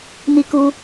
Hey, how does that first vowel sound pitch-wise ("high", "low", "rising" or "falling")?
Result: high